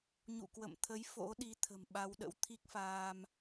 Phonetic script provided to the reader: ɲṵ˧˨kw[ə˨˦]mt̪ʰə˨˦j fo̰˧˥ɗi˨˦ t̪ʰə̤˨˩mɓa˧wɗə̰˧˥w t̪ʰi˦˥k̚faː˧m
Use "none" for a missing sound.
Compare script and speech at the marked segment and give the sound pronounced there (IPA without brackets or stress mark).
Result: ə̰˧˨